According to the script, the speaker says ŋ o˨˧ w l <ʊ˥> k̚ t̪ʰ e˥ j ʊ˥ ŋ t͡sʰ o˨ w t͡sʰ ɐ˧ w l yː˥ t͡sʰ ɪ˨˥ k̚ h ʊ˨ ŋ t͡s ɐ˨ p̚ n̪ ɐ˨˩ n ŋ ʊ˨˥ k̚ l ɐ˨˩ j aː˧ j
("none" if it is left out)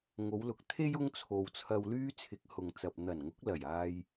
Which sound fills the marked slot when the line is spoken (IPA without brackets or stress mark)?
ʊ˨